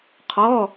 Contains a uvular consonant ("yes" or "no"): yes